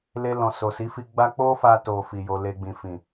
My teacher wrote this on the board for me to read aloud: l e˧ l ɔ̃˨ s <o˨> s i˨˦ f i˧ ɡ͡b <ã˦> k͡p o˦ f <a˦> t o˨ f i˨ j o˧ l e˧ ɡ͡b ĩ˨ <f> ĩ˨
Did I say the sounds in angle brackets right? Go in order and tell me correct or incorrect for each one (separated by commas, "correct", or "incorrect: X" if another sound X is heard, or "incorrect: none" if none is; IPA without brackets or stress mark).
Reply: correct, incorrect: a˦, incorrect: a˧, correct